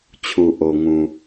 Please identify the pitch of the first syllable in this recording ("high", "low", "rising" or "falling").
low